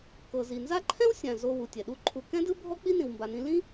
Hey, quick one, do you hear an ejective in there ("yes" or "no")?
no